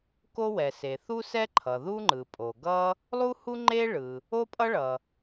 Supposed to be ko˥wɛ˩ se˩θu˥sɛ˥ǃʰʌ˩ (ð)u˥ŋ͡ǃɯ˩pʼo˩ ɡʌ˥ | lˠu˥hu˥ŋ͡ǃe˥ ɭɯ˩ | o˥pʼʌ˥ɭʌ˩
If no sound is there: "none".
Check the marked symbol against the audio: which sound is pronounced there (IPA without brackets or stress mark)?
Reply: ð